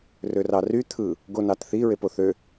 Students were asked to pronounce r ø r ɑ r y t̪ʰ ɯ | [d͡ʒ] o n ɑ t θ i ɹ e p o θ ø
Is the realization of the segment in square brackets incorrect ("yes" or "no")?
yes